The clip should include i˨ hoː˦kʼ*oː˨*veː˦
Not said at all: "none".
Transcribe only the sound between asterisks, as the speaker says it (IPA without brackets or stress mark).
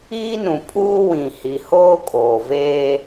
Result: oː˨